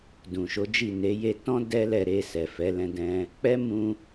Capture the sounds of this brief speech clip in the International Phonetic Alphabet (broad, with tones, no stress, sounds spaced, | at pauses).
d ũ˨ ʃ o˨˦ d͡ʒ i˦˨ n e˨˦ j e˧ t ɔ̃˦ d ɛ˦ l ɛ˧ ɾ e˧ s ɛ˨ f ɛ˨˦ l ɛ̃˧ d ɛ̃˧ | k͡p ɛ˦ m ũ˧